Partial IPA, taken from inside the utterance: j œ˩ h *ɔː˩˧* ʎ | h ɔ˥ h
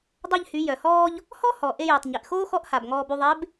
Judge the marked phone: incorrect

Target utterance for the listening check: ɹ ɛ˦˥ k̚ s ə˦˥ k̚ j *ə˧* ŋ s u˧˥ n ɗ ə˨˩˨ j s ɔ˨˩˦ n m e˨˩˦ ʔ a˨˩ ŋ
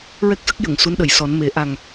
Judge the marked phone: incorrect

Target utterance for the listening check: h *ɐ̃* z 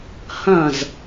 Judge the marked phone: correct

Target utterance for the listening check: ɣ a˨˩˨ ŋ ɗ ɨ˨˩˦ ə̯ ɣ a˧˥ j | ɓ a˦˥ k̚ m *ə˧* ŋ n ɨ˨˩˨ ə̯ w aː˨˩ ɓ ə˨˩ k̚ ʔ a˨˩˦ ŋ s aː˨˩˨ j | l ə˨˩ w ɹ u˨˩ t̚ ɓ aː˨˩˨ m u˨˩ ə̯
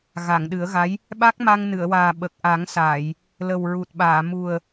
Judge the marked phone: incorrect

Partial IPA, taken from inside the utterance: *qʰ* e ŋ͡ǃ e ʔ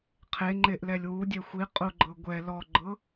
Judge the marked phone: correct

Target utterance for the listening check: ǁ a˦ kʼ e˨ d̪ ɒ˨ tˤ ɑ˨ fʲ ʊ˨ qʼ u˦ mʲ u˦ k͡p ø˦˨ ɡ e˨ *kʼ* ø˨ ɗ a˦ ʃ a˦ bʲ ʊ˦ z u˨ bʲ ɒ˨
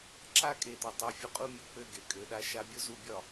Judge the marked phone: correct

